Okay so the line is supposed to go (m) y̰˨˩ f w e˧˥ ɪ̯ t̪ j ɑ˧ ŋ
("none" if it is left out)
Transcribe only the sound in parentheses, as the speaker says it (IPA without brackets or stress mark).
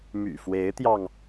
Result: m